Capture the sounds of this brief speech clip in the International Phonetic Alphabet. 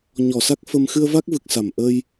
ɲɔ˧˩sa˦˥k̚ fə˧m xɨ˧ə̯va˦˥k̚vɨ˨˩k̚ sa˧˩m ʔə˧j

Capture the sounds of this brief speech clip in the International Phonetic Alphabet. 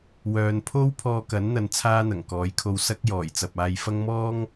wœː˨npʰo˥w pʰɔː˧kɐ˨˥nn̪ɐ˨n t͡sʰaː˥n̪ɐ˨˩ŋkɔː˨˥jkʰo˧w sɐ˥k̚jɔː˨˩jt͡sɐ˨p̚ aː˨jfɐ˥ŋmɔː˥ŋ

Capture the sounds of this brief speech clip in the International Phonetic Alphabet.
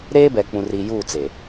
ɾeː˦bɛ˨k͡pũ˨ri˨ juː˦˨t͡se˨

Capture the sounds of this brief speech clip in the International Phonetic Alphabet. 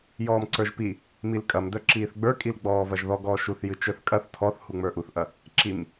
jɔːmǀə˞ʒpi | milkʼɐmdœ ǁiːθɡ͡bə˞kʼil ɡ͡bɔːvɐʒðɔ ɡɔːʃuθjɨ t͡ʃə˞θkʼɐθ tʰɔθhu ŋ͡mə˞ʔuθʔɐ | ǁim

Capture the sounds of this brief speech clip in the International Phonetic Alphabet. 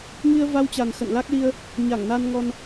ŋi˧ə̯va˧wt͡ɕa˨˩n xə̰˧˨nla˦˥k̚ li˧ə̯ | ɲa˧˩ŋna˧nŋɔ˧n

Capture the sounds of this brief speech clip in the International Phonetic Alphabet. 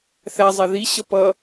θæzˤɛ ðiɕʌ pʌ

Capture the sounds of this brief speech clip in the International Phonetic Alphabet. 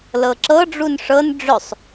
lɤǁɤ ɖ͡ʐunʂɤn ɖ͡ʐœsˤ

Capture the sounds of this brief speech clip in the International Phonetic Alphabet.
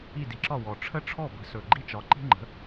i˥˨di˩˥ǁɒ˥˨ wɔ˨˩ʈ͡ʂʰə˥ ʈ͡ʂʰɔ˥˨bə̤˩˥ sɵ˨˩ ɡ͡ǃi˥t͡ʃɒ˩˥ǃi̤˥ ŋ͡ǃə̤˩˥

